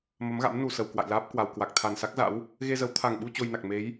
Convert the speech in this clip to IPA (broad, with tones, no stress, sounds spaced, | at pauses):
m ə˨˦ m ɣ a̰˧˥ m n u˨˩ s ə˨˩ w k w a̰˧˨ j l aː˦˥ p̚ k w a˨˩ w k w a˨˩ k̚ t̪ʰ a˨˩ n s a˦˥ k̚ z a̰˧˥ w | ɣ e˧ z ə˨˦ w t̪ʰ a˨˩ ŋ ɓ u˧ t͡ɕ o˧ j n a˨˩ k̚ m e˨˦ j